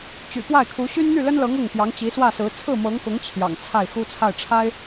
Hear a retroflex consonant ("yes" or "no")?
yes